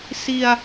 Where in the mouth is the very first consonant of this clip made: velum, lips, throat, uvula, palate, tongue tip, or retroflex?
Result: tongue tip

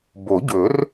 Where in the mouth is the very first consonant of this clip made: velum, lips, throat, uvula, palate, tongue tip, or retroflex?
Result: lips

